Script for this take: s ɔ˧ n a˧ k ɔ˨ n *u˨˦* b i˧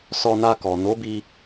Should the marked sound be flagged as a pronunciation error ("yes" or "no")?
yes